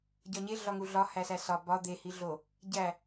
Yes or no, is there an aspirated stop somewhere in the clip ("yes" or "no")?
no